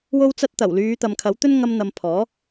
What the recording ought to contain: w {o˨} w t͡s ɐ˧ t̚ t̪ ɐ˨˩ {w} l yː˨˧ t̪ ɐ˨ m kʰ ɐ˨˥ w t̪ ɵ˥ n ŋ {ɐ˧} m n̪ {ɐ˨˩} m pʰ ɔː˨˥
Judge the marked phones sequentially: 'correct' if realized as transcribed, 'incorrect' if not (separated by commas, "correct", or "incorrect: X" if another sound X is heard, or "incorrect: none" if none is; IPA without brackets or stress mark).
incorrect: o˧, correct, correct, incorrect: ɐ˨